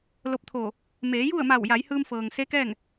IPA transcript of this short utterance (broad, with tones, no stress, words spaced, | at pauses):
lo˧p̚t̪ʰoː˧˩ | meː˩˧ju˥˨ə̯ma˧˩w ja˩˧jhɯː˧mfɤː˩ŋ se˧˥kɛː˥˨ŋ